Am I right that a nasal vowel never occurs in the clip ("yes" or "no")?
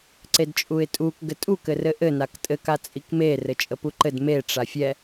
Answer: yes